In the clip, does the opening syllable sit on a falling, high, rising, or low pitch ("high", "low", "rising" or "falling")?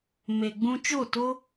low